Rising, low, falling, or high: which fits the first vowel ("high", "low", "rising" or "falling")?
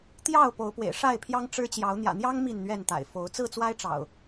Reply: falling